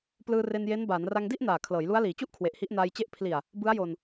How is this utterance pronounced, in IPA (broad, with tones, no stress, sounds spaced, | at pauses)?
p l ɯː˧ r e˧ n j e˦˥ n b aː˩˦ n r a˧ ŋ d i˥˩ ʔ n aː˨˩ kʰ l ɤː˩˦ j l u˦˥ a̯ l iː˩˦ t͡ɕ u˥˩ ʔ kʰ w e˨˩ ʔ h i˦˥ ʔ n aː˧ j t͡ɕ e˥˩ ʔ pʰ l i˨˩ a̯ | b ɯ˦˥ a̯ j o˧ n